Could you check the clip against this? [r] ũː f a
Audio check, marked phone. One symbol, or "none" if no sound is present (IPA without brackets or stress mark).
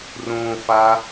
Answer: r